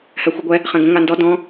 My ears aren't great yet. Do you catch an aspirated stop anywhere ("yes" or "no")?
no